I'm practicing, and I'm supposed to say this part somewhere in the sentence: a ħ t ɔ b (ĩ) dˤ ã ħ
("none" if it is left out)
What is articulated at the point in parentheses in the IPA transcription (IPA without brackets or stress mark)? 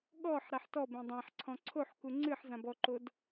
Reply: ẽ